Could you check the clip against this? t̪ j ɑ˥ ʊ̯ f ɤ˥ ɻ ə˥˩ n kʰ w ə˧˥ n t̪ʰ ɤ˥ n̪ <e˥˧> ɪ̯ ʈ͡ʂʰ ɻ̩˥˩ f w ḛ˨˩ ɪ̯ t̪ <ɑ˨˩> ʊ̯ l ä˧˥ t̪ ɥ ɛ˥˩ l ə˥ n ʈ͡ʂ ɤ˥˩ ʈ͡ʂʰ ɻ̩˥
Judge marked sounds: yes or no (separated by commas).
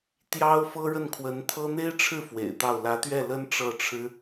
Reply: no, no